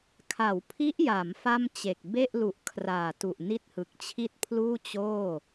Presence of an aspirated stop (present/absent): present